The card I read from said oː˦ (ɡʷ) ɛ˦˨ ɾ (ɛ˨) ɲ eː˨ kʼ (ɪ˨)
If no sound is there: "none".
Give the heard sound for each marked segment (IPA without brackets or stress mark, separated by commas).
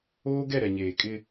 ɡ, ɛ˨, ɪ˦